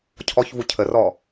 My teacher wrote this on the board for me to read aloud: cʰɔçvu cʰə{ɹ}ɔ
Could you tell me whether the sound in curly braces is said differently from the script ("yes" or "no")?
yes